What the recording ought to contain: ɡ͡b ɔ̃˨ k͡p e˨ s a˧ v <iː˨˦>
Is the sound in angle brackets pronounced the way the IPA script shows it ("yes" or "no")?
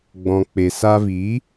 yes